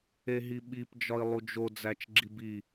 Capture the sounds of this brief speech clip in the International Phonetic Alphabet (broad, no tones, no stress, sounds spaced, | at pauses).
e ɦ i ɓ i p d͡ʒ ɒ i̯ lˠ u d͡ʒ o d͡z æ t͡ʃ ɡ͡ǁ i b i